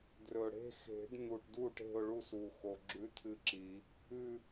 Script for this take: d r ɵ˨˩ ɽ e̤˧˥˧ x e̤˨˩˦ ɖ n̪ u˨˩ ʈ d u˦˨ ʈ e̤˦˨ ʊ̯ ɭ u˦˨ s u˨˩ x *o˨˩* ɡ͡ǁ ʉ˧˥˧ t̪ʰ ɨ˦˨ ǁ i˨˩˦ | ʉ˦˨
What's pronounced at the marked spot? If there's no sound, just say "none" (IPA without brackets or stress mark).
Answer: o˨˩